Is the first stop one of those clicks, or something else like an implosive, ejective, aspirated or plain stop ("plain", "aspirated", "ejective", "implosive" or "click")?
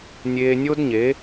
plain